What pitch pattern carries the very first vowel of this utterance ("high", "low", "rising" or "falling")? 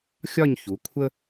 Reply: falling